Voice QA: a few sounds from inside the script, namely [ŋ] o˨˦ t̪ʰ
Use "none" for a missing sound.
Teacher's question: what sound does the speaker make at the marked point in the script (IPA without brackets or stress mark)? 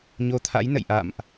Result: ɲ